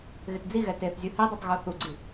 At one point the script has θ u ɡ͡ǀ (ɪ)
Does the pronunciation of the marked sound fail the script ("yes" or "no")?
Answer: yes